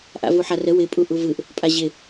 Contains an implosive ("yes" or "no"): no